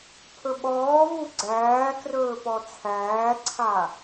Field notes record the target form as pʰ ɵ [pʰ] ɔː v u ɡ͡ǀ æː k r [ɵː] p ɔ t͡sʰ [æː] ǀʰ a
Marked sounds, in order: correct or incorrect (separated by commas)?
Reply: incorrect, correct, correct